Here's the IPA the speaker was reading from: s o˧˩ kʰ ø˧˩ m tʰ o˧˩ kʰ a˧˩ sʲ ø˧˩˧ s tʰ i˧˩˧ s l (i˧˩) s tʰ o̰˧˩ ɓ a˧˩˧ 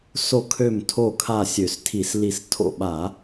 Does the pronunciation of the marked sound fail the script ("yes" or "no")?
no